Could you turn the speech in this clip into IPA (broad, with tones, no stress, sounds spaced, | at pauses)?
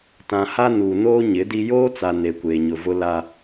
t ã˨ h a˦ n uː˨ n oː˦ ɲ ɪ˨˦ d i˦ j oː˦ t͡s a˨ n e˨ kʷ eː˨ ɲ ʊ˨ v ʊ˦ l a˦